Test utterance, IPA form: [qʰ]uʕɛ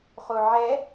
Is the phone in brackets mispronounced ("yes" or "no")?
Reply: yes